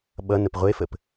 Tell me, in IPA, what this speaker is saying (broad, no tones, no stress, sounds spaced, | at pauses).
ɓ ʌ n ə p ʁʷ e f ə p